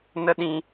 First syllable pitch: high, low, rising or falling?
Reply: high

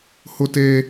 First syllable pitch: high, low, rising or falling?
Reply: high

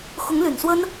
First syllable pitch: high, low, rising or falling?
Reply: rising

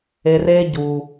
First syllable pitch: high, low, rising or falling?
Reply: low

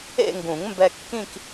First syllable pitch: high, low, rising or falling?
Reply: falling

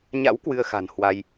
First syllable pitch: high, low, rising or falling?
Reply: rising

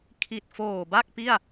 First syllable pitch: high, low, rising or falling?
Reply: low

